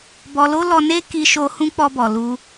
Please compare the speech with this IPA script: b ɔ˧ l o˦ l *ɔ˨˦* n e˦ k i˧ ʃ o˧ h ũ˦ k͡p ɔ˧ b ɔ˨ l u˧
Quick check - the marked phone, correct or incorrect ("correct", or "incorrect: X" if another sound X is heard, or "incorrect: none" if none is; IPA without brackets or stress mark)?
incorrect: ɔ˧